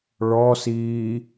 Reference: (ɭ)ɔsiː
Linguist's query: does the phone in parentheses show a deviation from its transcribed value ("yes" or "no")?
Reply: no